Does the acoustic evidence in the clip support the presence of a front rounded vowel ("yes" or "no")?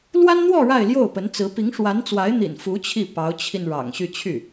yes